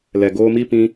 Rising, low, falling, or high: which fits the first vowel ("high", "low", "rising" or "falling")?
low